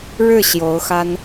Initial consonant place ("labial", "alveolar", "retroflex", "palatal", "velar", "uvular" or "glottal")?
retroflex